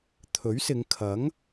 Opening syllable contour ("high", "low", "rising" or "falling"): rising